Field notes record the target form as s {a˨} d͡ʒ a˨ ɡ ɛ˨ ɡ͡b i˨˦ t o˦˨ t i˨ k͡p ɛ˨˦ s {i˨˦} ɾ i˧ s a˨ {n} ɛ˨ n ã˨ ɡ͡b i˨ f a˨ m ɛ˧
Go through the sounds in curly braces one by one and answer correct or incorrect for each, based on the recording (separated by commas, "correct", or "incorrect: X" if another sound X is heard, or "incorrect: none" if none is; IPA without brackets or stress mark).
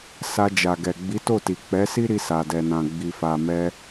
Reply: incorrect: a˧, incorrect: i˦, incorrect: d